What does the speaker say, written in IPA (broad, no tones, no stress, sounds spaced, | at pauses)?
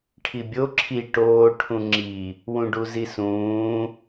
ʈʰ i bʲ o ǁʰ i ʈ oː ʈʰ ũ ŋ͡ǁ i | w ũ ɖ u z i s ũː